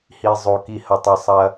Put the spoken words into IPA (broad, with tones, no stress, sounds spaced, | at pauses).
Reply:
h i˨ zˤ o˨ k i˨ h ɐ˨ tˤ ɛ˨ sˤ ɐ˦